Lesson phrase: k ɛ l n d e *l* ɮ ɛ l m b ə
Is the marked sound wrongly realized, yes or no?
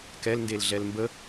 no